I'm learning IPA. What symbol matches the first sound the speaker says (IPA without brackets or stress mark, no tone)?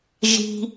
ʒ